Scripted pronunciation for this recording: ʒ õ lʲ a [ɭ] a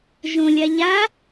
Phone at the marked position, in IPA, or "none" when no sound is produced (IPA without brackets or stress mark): ʎ